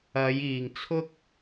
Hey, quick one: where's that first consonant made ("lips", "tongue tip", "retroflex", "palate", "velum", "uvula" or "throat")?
palate